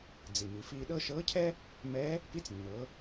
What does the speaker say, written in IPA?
d͡z i˩ m i˩ f iː˧ ɗ ɤ˥ ʃ ɤː˧˥ cʰ ɛ˥ | m ɛ˧˥ | p i˧˥ t͡s nː ɤ˩˧

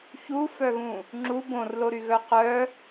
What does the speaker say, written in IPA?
ç u f œ ɣ ũ | ŋ͡ǁ u b õ r l o ɾ y ɣ œ q œ

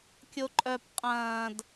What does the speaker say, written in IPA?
kʲ o ǃʼ œ p qʼ ɐ̃ː d

